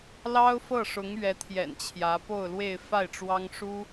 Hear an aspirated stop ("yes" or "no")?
yes